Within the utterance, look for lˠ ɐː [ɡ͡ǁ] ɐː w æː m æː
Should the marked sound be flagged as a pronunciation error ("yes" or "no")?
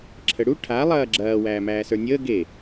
no